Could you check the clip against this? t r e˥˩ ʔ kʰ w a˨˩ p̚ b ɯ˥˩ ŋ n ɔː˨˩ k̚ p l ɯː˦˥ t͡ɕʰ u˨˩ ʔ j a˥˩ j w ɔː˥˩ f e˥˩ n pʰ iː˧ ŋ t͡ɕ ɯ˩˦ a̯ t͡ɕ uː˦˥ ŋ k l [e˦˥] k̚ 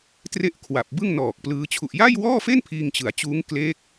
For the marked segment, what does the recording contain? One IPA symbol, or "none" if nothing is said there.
e˦˥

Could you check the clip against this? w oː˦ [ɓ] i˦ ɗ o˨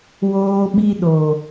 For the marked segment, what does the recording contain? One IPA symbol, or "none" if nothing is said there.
ɓ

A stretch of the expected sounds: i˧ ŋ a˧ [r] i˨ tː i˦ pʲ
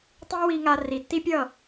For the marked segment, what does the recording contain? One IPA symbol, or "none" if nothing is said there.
r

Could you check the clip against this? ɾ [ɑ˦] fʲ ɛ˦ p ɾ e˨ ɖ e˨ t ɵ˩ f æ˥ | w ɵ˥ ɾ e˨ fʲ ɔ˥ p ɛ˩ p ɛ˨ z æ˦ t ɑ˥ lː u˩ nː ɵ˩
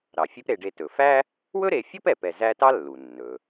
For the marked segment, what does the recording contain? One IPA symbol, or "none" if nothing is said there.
ɑ˩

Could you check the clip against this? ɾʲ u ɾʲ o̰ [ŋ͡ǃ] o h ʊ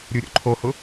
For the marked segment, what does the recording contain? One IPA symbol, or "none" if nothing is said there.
ǃʰ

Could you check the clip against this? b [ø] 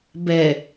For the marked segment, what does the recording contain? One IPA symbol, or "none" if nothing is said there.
ɛ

